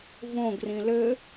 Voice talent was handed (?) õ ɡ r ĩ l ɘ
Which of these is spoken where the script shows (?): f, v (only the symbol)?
v